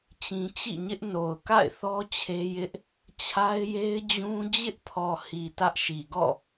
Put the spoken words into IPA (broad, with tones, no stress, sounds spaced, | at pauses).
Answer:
t͡ɕ ĩ˦ t͡ɕ ḭ˦˨ ɲ ɪ˦ ʔ n o˨ ʊ̯ k a̰˦˨ ɪ̯ θ ɔ˦ t͡ɕʰ e˦ j ɪ˦ ʔ | t͡ɕʰ a˦ ɪ̯ j e˦ ɪ̯ d͡ʑ ũ˦ d͡ʑ ɪ˦ ʔ pʰ ɔ˨ h i˨ t ä˦ ʔ ʃ i˨ ɡ ɔ̰˦˨